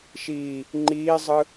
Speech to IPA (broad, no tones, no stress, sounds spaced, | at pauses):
ʃ iː | ŋ͡ǃ iː zˤ ɯ